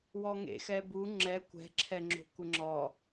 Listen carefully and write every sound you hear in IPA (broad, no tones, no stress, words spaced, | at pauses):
wɔŋḛ xɛbu ŋ͡ǁɛ kʷɛ̤ ǁʰɛŋ͡ǁo̤kʷɘŋ͡ǁɔ